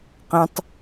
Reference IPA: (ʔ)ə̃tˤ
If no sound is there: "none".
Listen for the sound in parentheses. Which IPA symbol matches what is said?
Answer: q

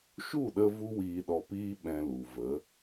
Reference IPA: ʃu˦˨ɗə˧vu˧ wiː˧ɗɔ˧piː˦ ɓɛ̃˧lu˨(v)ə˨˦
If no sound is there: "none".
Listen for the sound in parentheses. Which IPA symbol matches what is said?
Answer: v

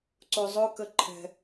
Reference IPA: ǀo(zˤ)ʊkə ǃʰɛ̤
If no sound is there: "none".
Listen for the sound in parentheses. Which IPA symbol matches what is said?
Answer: zˤ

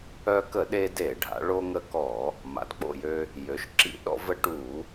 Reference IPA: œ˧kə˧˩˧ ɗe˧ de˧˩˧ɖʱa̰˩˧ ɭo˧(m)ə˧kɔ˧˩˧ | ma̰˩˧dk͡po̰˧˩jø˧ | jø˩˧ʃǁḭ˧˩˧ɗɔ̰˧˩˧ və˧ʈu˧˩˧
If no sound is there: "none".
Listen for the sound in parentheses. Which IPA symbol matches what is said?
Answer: ŋ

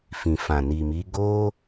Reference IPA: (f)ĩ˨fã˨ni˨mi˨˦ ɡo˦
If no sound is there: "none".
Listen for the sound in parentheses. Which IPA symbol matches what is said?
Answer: f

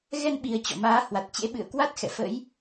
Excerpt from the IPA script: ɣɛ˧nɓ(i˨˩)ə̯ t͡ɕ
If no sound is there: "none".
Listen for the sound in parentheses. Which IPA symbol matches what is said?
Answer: i˨˩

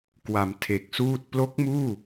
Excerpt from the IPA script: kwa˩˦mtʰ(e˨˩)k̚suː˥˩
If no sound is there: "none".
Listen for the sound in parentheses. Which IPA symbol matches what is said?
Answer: e˨˩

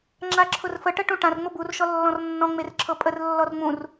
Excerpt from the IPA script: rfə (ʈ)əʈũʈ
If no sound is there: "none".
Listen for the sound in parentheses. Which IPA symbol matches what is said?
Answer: ʈ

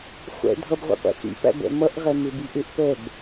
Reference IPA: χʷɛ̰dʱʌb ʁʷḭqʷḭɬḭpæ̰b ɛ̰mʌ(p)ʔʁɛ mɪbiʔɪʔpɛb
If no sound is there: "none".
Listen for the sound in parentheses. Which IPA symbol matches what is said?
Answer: none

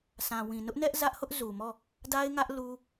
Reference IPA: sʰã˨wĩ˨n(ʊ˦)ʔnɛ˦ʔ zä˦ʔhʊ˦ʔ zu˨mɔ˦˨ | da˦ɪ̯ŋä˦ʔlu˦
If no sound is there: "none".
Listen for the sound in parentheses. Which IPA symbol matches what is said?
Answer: ʊ˦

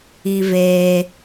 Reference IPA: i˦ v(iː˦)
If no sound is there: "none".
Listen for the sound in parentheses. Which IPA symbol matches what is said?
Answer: eː˦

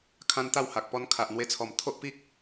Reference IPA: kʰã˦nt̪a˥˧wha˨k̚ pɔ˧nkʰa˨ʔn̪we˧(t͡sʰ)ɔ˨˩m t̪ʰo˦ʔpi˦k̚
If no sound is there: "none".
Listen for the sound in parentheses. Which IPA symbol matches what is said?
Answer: t͡sʰ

